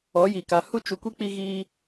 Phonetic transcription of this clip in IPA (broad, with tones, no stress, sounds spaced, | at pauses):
ɔ˨˦ j iː˨ k a˨ h u˧ t͡ʃ u˨ kʷ i˧ k͡p i˧ ɣ iː˧